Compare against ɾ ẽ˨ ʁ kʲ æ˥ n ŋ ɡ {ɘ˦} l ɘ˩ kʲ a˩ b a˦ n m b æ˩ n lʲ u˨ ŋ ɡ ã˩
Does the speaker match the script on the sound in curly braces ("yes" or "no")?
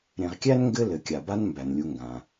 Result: yes